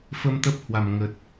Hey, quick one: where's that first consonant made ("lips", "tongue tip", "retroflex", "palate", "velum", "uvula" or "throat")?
lips